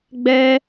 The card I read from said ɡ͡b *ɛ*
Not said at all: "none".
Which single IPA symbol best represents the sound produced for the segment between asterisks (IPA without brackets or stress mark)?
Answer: ɛ